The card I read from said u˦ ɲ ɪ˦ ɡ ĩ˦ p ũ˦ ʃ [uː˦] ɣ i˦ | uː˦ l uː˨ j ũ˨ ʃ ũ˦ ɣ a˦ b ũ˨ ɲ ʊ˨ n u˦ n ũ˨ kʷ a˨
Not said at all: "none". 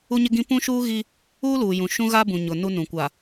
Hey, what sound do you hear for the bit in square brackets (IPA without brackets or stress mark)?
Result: uː˦